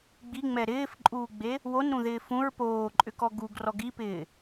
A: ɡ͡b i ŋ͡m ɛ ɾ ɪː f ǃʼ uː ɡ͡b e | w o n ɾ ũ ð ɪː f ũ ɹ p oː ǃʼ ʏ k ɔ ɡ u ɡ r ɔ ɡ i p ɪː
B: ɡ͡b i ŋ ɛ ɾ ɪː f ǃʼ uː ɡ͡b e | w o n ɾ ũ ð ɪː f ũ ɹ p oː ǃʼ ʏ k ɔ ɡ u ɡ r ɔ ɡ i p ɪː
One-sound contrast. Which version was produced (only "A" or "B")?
A